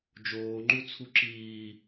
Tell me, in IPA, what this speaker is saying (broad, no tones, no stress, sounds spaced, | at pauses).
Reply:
d͡ʒ oː ŋ͡ǃ u t͡sʰ u ǁ iː